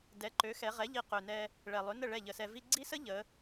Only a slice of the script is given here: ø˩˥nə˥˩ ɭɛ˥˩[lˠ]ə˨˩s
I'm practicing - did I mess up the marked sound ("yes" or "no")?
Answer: yes